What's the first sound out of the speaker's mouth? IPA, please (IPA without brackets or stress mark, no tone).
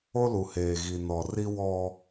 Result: o